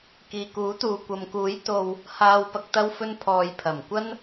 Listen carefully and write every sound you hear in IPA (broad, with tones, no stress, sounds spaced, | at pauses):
k iː˨ k uː˨˥ t̪ uː˨ kʷ ɐ˨ m k uː˨˥ j t̪ o˨ w | h aː˨ w p ɐ˨ k̚ t̪ ɐ˧ w f ɵ˧ n pʰ ɔː˨ j pʰ ɐ˨˩ m kʷ ɐ˥ n